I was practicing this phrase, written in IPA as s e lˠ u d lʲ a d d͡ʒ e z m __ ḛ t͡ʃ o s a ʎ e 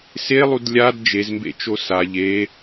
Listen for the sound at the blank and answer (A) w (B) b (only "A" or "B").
B